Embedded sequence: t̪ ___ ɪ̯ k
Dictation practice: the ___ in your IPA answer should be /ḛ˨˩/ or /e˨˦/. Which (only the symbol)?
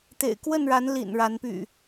ḛ˨˩